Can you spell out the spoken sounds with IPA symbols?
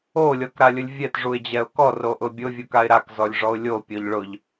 o lʲ ɔ k ɾ a lʲ ʊ lʲ vʲ ɛ t ʐ u ɪ̯ d͡ʑ ɛ ʊ̯ k ɔ r o ʔ ʊ bʲ ʊ vʲ u k a ɪ̯ ɾ a k z ɔ lʲ ʐ ɔ ʊ̯ lʲ o pʲ o ʎ ɭ ʊ ʎ

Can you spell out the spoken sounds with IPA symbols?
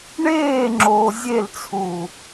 ɳ eː ŋ͡ǁ oː zʲ e l t͡sʰ uː

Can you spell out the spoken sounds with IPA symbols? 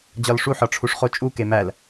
d͡ʑ ɒ l ʂ u ħ ɒ ʈ͡ʂʰ u ʂ χ o t͡ʃʼ u k e m æ l

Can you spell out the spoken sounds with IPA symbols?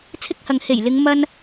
t͡sʰ ɪ˥ k̚ h ɐ˨ ŋ h e˨˩ j l ɪ˨˧ ŋ m ɐ˥ n

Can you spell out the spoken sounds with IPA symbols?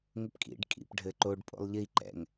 ŋ ɘ p kʼ ḭ ɖ kʼ ḭ p ɖʱ ɘ ǃ o ɖ pʼ o̰ lˠ ʎ i ǃ ɛ̰ ŋ

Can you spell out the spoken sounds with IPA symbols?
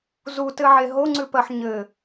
z u t ɘ ʕ e ɦ o ŋ͡ǀ ʉ p ɜ ħ ɲ ɘ

